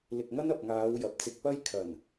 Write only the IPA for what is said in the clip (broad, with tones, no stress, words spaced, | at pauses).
lɪ˨k̚ŋɐ˥n ɐ˨p̚ŋaː˨˧w jɐ˨p̚t͡sɪ˧k̚ pɐ˥jkʰɐ˨˩n